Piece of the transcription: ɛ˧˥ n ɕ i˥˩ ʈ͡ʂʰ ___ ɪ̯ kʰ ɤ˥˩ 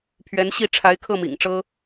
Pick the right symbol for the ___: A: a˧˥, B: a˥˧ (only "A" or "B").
A